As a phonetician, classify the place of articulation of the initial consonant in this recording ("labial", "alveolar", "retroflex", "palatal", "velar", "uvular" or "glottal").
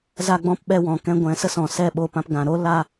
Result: alveolar